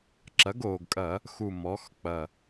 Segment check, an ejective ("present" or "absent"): present